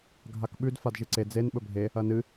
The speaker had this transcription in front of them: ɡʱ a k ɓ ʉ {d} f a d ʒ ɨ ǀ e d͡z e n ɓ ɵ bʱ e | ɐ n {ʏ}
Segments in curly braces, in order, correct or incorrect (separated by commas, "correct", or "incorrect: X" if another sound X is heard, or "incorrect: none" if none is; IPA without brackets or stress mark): correct, incorrect: ɨ